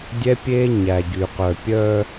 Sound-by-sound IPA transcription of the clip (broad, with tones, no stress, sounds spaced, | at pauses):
dʲ ɛ˦ pʲ eː˦ ɲ æ˨ ɟ y˨ q œ˨ pʲ œ˦